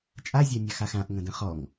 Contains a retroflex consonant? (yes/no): no